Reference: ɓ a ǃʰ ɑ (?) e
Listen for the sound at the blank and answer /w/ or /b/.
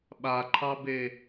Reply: b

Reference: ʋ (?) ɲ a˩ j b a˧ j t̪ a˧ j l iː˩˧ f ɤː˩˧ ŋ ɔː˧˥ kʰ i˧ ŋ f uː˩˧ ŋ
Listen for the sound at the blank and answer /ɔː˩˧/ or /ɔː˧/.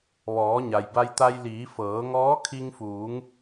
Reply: ɔː˩˧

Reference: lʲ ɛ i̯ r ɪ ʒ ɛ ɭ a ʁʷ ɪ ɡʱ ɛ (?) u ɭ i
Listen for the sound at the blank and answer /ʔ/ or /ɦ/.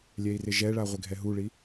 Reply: ɦ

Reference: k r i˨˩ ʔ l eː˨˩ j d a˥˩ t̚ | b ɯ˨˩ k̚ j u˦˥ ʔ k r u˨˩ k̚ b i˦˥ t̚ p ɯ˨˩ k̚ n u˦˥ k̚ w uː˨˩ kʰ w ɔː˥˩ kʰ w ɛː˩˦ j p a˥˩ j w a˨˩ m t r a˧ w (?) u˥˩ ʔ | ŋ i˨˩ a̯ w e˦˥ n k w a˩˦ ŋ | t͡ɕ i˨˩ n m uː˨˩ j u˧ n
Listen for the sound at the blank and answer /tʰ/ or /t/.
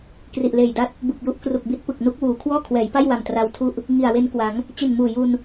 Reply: tʰ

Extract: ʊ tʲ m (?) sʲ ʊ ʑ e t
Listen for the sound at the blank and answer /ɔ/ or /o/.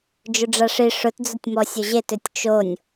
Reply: ɔ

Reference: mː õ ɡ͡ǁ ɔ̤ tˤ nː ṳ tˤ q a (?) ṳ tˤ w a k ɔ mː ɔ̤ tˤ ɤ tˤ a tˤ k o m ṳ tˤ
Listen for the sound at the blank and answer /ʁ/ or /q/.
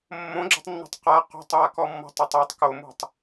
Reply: q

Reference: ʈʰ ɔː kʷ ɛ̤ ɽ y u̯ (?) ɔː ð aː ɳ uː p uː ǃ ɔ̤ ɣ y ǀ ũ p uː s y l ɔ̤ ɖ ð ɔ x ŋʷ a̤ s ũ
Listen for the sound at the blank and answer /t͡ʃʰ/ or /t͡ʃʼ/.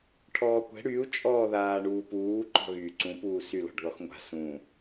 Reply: t͡ʃʼ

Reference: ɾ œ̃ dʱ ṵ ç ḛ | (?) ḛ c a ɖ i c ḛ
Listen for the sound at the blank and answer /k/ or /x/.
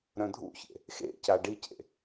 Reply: x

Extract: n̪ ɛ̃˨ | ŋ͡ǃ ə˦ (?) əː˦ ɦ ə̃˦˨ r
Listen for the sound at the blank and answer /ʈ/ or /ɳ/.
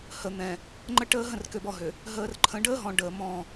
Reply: ʈ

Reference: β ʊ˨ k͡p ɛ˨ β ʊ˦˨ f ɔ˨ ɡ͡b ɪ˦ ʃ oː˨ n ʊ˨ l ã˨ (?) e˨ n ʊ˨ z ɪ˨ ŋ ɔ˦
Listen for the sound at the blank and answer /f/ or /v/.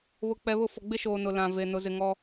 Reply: v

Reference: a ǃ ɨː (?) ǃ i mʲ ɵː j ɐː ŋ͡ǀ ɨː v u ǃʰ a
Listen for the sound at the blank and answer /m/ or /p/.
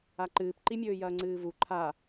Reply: p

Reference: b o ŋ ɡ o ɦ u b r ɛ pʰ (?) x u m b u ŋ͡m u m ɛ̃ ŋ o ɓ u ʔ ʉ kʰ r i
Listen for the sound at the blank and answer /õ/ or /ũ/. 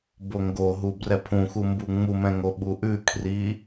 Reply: ũ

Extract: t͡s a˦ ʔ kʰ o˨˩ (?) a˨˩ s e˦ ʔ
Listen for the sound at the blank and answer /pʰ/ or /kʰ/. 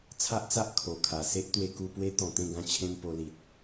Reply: kʰ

